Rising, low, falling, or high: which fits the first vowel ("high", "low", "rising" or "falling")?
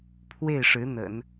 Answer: falling